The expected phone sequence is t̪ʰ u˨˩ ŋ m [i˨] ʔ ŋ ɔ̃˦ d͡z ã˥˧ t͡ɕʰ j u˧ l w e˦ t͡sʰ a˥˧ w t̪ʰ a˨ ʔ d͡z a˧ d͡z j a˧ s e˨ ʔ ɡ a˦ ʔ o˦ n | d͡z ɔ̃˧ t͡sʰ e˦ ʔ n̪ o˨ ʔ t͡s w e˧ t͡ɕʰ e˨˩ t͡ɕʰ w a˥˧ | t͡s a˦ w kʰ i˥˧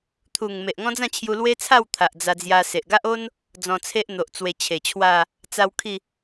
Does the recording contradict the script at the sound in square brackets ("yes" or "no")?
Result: yes